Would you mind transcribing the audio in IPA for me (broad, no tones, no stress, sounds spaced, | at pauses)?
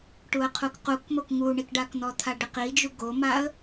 ʈ u ə̯ qʰ u k q u k m o k ŋ u ɳ i k ɖ a k n̪ ɔ t̪ʰ a ɖ ɪ q i d͡ʒ u ɡ o m a ə̯